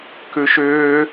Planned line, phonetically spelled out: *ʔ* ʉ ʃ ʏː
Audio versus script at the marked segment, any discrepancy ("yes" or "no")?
yes